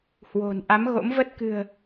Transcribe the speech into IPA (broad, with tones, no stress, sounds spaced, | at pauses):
h w o̤˨˩ n ʔ a˨˦ m ɣ o̰˧˥ m v ə˦˥ t̚ k ɨ̤˨˩ ə̯